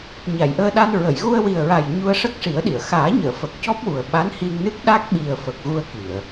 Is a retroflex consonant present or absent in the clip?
present